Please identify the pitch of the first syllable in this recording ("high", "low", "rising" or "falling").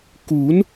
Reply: rising